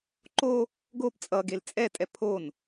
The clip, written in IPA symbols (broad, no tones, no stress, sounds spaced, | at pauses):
ǃ o | ɡ o p t͡sʼ ʌ ɡ e l t͡sʼ ɛ tʼ ɛ pʰ o n